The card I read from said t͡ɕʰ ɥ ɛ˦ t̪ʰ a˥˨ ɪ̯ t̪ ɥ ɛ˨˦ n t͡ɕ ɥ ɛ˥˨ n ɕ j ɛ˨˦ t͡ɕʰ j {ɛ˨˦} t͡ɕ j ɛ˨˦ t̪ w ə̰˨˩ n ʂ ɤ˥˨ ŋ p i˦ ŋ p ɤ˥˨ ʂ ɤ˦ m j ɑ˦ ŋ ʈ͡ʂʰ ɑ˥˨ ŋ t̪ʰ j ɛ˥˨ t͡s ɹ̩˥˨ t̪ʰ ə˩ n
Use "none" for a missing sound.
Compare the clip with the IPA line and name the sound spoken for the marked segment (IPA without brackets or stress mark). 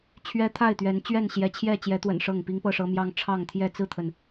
ɛ˥˨